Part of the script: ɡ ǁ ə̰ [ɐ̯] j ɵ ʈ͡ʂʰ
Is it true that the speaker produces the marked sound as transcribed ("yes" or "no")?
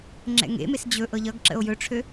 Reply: no